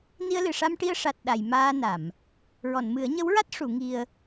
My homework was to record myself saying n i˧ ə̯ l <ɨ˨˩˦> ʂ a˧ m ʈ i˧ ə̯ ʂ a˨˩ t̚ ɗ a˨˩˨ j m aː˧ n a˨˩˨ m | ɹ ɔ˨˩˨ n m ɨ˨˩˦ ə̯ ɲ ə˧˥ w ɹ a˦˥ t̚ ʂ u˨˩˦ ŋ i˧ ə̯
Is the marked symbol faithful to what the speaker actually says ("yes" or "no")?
no